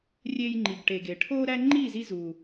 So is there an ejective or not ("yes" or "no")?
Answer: no